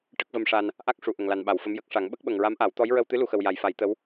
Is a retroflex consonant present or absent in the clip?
present